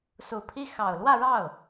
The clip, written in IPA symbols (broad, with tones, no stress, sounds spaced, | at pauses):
s u˨˩ pʰ i˥˩ x ɑ˨˩ ʊ̯ l w ä˥˧ ɻ ɑ˥˩ ʊ̯